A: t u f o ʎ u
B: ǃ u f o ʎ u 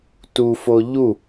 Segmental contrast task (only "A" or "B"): A